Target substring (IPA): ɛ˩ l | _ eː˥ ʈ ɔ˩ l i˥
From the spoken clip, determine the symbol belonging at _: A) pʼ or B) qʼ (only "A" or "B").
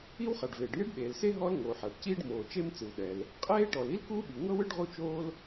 B